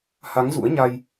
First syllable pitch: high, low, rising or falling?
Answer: rising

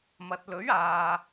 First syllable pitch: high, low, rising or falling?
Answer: low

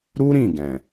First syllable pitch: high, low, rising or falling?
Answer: high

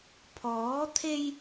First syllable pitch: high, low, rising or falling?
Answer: rising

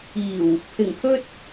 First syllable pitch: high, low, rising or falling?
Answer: low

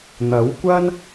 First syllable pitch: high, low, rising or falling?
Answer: rising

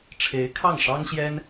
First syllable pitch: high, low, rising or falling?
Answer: rising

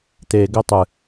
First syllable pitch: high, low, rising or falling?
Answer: low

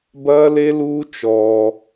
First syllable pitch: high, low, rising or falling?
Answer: high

